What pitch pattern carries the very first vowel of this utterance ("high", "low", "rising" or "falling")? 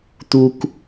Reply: high